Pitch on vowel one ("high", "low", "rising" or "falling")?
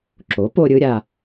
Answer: rising